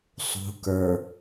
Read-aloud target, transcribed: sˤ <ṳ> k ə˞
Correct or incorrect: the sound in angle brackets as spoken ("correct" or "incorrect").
correct